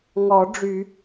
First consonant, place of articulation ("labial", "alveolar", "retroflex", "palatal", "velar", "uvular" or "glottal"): velar